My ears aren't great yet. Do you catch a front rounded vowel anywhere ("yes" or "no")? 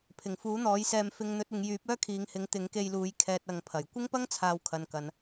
yes